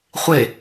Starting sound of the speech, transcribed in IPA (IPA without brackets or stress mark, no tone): χʷ